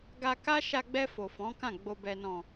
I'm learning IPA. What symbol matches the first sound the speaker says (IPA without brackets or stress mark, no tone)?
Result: ɡ